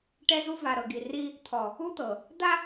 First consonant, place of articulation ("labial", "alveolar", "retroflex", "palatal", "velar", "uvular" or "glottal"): retroflex